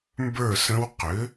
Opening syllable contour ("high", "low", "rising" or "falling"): falling